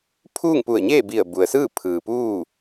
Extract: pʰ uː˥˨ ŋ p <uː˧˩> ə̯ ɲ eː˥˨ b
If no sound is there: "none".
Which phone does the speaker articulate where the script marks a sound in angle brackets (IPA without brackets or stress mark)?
u˧˩